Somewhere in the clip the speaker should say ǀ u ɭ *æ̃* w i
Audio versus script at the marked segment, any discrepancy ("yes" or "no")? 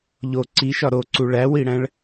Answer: yes